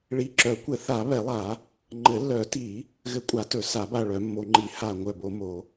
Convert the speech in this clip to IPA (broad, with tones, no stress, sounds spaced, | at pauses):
ɭ i˨˩˦ ǁ œ˨˩˦ kʷ ɘ˨˩˦ θ a˨˩˦ β ɛ˨˩˦ lˠ a˨˩˦ | ŋ͡ǃ ɘ˨˩˦ lː œ˨˩˦ t i˨˩˦ | ɣ ɘ˧˩ kʷʼ a˨˩˦ t ɵ˨˩˦ s a˨˩˦ b a˧˩ ɭ œ˨˩˦ mː o˨˩˦ ŋ͡ǃ i˨˩˦ h a˧˩ ŋʷ œ˧˩ b o˨˩˦ m o˨˩˦